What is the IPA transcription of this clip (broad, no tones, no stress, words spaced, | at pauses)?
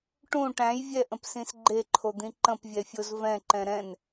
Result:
ʈũ ʈæ̃jvʲɛʔə̃psĩs ɡ͡ǃeǃʰod̪ĩ ǃə̃pvʲɛfʲoz vɛ̃ǃɛ̃ ɾɛ̃n